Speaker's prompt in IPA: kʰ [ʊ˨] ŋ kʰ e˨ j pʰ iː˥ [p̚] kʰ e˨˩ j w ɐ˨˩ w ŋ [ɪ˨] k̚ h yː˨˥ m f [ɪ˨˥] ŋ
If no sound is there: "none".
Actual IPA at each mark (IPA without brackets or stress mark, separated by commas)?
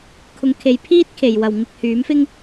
ʊ˨˧, t̚, ɪ˨, ɪ˥